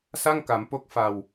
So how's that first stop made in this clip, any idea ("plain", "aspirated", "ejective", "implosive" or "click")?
plain